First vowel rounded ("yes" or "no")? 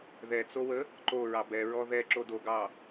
no